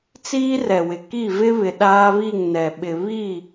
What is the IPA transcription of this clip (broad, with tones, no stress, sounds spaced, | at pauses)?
t͡s iː˦ r ɛ˨ w ɪ˨ k i˦˨ v ɪ˦ β ɪ˨ ɗ aː˦ β i˦˨ ŋ n ɛ˨ ɓ ɪ˨ β i˦˨